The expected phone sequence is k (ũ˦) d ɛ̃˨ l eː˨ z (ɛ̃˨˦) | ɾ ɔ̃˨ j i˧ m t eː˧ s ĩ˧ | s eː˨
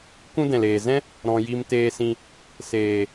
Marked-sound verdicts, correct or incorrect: correct, incorrect: ɛ̃˦

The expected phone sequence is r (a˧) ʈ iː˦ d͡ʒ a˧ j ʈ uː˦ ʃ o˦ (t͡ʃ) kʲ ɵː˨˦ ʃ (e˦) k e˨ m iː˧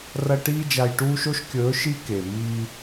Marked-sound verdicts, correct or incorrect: incorrect: ɐ˧, incorrect: ʃ, incorrect: i˦

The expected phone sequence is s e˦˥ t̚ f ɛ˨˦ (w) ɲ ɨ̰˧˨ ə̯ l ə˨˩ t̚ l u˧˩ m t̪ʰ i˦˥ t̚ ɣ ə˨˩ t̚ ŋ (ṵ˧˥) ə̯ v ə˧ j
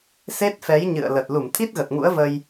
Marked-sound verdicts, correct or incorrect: incorrect: j, correct

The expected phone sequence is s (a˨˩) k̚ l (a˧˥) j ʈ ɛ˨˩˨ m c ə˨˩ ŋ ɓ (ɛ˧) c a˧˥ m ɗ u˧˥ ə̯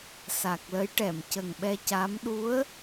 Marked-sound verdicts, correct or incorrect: correct, incorrect: ə˧˥, correct

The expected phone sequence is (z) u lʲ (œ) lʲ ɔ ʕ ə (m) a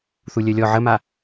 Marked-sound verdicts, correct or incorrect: incorrect: θ, correct, correct

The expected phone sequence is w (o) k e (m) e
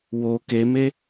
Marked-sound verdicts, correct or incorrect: correct, correct

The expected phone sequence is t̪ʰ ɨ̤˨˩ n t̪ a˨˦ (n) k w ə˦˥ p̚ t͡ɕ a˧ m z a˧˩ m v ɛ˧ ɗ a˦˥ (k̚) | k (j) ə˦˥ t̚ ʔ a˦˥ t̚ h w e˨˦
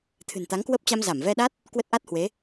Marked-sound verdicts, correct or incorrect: incorrect: ŋ, incorrect: t̚, incorrect: w

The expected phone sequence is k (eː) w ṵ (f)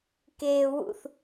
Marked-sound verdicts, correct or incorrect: correct, incorrect: θ

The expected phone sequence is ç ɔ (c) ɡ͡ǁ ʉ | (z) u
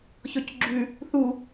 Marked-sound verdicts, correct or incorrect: correct, incorrect: θ

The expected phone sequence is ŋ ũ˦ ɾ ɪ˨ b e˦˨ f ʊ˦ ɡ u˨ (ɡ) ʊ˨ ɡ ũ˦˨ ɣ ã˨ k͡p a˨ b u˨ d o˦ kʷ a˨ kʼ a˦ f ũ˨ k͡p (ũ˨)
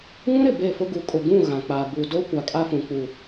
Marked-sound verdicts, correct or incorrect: incorrect: kʼ, incorrect: u˨

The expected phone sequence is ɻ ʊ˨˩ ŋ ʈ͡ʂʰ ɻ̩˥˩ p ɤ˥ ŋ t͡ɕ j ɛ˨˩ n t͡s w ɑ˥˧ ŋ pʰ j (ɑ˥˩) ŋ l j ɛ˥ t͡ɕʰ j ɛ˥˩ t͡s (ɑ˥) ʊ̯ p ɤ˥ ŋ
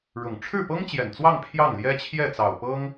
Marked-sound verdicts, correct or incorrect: correct, incorrect: ɑ˨˩

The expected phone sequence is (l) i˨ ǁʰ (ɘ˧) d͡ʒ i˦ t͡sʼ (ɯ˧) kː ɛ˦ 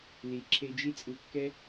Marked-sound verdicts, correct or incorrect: correct, incorrect: e˧, correct

